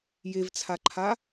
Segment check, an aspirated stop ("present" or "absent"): present